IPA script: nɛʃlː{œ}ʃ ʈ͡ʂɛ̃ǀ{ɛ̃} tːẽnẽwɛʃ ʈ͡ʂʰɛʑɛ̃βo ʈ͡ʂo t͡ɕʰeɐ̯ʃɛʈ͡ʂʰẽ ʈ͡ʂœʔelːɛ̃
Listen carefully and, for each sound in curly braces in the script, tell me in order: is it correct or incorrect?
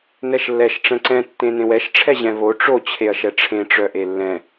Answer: incorrect: ɛ, correct

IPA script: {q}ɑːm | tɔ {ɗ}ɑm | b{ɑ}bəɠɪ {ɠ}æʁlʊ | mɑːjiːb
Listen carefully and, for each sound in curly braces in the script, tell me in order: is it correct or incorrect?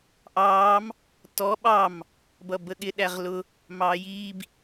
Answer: incorrect: ʔ, incorrect: ɓ, incorrect: ʌ, incorrect: ɗ

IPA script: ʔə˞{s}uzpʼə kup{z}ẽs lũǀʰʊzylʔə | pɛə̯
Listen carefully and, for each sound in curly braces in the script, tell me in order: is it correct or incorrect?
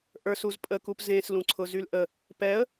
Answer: correct, correct

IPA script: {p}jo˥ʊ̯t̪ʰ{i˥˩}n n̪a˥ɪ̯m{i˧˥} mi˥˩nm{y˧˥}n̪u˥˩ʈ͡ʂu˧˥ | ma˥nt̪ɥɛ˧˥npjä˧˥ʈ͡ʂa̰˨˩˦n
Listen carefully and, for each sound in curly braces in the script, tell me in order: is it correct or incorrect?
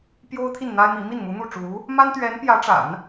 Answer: correct, correct, correct, incorrect: u˧˥

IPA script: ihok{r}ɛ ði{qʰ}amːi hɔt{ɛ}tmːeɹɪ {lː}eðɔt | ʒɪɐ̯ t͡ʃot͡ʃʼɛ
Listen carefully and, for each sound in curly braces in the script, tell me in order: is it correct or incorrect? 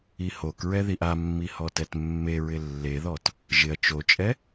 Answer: incorrect: ɹ, incorrect: ʔ, correct, correct

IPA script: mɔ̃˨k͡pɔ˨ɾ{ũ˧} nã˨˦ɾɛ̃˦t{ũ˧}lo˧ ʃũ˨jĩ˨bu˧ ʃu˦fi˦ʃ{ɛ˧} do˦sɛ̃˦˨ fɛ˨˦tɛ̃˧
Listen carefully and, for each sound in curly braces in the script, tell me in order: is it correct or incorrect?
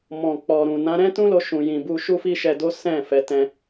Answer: incorrect: ũ˨, incorrect: ũ˦, correct

